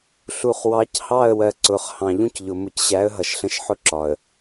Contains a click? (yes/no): yes